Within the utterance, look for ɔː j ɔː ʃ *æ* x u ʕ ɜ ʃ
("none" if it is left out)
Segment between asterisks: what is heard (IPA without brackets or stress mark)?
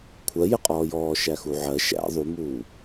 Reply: æ